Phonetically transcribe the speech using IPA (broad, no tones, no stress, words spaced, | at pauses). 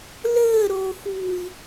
ləːɾoːxuːi̯